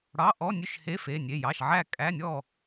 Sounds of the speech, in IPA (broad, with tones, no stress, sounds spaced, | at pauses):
ɽ ɑ˧˥˧ ʔ ɔ˧˥˧ nʲ ʉ˥˨ ʃ h e˧˥˧ f e˧˥˧ nʲ e˧˥˧ j ɑ˧˥˧ ʃ ʕ æ˥˨ kʼ æ˧˥˧ nʲ ɔ˥˨